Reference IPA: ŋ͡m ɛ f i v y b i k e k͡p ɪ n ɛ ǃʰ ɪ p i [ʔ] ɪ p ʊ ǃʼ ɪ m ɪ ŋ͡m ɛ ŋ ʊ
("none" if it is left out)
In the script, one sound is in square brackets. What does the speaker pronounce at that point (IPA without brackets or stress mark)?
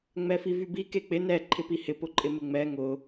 h